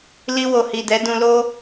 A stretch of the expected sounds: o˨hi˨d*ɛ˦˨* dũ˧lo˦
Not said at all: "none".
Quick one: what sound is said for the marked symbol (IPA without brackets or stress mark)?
ɛ˨˦